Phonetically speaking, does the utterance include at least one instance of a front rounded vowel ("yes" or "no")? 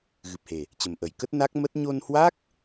no